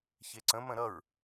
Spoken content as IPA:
ç e ǀ ə̃ m ə̃ ɾ ʌ ɹ

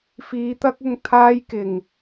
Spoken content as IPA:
f iː˨˧ t̪ ɐ˥ k̚ ʊ˧ ŋ t̪ʰ aː˥ j k ɪ˨˩ ŋ

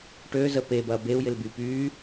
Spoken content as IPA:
ʈ ø z ə p e b ɐ b e u̯ j ɪ l b y p yː

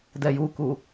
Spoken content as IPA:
d ɛ j u k u

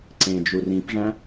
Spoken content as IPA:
ǀ ẽ d͡ʒ u r ĩ p ʐ æ̃

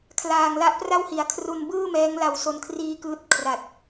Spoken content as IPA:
kʰ l aː˨˩ ŋ l a˦˥ ʔ p r a˥˩ w h i˩˦ a̯ kʰ r u˧ n b ɯː˥˩ m ɛː˦˥ ŋ l a˧ w s o˧ n kʰ r iː˦˥ k ɯː˦˥ t̚ kʰ r a˨˩ t̚

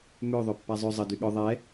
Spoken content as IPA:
m ø ðˤ ø pː a zˤ ø zˤ ə d y ɠ œ ðˤ ɛ

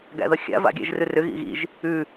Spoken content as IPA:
ɡ æ̰ ð ʌ xʲ a̰ v a̰ ɡʲ æ̰ ʒ r ʉ r ʏ ɣ ḭ ɣ ḭ ʒ | ʉ

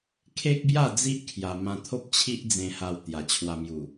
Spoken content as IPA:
kʰ e˦ k̚ b j a˥˧ d͡z i˦ ʔ kʰ j a˧ m ã˧ t̪ʰ o˦ p̚ t͡ɕʰ i˦ ʔ d͡z ẽ˧ h a˧ w t̪ j a˨˩ t͡ɕʰ w a˧ m j u˨˩

